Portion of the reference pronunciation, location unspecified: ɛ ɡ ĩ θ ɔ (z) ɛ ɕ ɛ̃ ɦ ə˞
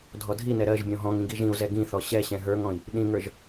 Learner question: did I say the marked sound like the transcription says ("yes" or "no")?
no